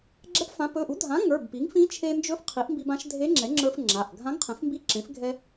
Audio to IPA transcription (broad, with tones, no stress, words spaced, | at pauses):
ɡ͡ǁɛ˧˥pfã˩˥ pɵ˩˧˩ʔu˩˥dʱã˩˥ ŋə˞˩˧˩bpi˩˥ŋfĩ˧˥ t͡ʃʰe˧nd͡ʒɵ˧˥f qʰi˩˥ʔmbi˧bã˩˥ʃ dʱe˧˥ŋ͡ǁɛ˩˥ŋ͡ǁə˞˧f ŋ͡ǁa˩˧˩ʔ ɡʱã˧˥ŋqʰẽ˩˥fmbi˧˥ǁẽ˩˥f ɡʱɛ˧